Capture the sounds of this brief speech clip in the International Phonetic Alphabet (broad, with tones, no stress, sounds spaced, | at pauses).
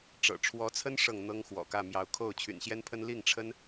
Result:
ʈ͡ʂ ɤ̰˨˩ ʈ͡ʂʰ w ɔ˧˥ t͡sʰ ə˥ n ʂ ɤ˥˩ ŋ n̪ ɤ˥ ŋ x w ɔ̰˨˩ k ä˥˩ m j ɑ˧˥ ʊ̯ kʰ o˥˩ ʊ̯ t͡ɕʰ y̰˨˩ n ɕ j ɛ˥ n pʰ ə˥ n l i˥˩ ŋ ʈ͡ʂʰ ə˥ n